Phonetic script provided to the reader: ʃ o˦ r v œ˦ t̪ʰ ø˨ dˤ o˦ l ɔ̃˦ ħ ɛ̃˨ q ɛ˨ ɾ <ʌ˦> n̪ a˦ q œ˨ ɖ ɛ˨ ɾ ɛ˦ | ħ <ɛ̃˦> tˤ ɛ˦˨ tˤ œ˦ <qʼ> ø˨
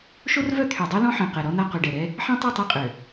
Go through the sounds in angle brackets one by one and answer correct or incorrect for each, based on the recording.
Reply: incorrect, correct, correct

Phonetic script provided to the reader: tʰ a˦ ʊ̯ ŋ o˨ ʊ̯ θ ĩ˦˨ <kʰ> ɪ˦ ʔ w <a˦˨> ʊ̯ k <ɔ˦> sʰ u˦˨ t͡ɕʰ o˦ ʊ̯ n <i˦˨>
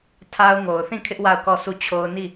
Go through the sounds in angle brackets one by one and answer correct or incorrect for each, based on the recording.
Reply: correct, correct, incorrect, correct

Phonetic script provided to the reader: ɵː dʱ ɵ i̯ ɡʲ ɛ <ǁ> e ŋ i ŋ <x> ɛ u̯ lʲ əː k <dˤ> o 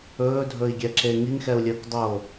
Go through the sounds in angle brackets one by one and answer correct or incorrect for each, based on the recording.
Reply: correct, correct, correct

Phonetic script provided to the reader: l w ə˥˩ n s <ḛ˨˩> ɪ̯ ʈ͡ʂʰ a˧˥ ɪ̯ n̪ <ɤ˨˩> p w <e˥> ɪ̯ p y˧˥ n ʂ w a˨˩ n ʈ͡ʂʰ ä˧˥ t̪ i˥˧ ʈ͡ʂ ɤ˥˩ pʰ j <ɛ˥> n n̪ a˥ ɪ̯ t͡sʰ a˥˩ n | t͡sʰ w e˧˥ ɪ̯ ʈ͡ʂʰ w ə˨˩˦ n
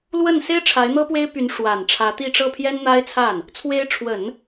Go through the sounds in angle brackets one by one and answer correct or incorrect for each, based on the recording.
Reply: incorrect, incorrect, correct, correct

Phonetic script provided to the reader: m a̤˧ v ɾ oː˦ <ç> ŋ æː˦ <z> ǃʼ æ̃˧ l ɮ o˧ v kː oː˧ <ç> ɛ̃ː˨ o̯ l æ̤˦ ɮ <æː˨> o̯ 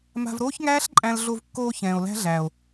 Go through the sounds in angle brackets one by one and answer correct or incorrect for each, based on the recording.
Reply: correct, incorrect, correct, correct

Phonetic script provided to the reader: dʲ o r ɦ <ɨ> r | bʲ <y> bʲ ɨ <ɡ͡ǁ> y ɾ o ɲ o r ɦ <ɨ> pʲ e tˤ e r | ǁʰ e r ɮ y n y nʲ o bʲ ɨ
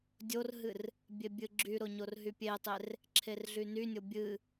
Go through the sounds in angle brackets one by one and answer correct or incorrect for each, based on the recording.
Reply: correct, incorrect, correct, incorrect

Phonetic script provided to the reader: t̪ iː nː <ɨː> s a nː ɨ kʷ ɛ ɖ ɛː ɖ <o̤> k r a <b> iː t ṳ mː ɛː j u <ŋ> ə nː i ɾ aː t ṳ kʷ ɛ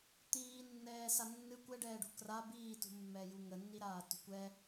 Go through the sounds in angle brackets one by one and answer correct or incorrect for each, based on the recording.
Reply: incorrect, incorrect, correct, correct

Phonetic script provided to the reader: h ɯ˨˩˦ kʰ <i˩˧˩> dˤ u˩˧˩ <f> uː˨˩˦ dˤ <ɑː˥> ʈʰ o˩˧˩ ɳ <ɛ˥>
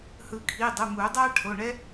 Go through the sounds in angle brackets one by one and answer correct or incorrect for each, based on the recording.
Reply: correct, incorrect, incorrect, correct

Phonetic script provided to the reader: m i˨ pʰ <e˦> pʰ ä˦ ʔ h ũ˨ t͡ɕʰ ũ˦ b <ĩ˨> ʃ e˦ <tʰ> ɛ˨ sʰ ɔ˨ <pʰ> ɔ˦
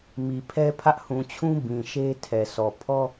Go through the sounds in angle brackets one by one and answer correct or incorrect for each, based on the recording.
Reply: incorrect, correct, correct, correct

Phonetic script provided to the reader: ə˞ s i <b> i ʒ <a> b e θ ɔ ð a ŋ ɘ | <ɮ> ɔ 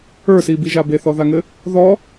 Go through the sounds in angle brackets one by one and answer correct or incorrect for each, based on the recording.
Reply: correct, correct, incorrect

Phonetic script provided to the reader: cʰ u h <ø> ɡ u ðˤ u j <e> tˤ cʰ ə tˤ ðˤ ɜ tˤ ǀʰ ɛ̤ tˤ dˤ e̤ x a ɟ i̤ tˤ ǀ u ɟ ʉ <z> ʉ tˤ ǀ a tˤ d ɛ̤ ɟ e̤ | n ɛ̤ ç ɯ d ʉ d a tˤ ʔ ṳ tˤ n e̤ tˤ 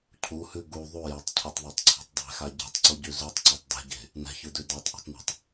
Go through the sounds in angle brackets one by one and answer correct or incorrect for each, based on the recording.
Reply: incorrect, correct, correct

